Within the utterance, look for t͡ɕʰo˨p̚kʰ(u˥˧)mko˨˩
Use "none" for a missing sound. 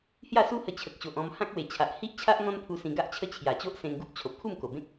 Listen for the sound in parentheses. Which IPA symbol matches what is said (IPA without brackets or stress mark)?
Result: u˥˧